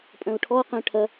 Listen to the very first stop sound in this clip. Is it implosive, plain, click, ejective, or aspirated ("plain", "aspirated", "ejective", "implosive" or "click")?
ejective